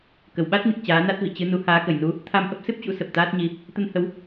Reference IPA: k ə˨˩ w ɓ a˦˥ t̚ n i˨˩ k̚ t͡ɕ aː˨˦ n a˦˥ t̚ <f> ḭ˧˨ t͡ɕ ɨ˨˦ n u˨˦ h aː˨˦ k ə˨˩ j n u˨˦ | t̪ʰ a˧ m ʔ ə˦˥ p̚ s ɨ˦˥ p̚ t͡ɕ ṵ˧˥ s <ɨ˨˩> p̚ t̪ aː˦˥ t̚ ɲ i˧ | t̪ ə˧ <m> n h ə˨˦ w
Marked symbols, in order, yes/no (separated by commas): no, no, no